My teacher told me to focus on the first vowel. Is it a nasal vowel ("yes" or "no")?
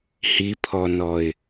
no